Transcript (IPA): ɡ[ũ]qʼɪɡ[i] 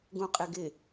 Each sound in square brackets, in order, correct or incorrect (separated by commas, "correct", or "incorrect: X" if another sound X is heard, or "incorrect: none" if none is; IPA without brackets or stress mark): correct, incorrect: ɪ